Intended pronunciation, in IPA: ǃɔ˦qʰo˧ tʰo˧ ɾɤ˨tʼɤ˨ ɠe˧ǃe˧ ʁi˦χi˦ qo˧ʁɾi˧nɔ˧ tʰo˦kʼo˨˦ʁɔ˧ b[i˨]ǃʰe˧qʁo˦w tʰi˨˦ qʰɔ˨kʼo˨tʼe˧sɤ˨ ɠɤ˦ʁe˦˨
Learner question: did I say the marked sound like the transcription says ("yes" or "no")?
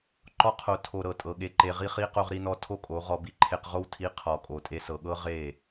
no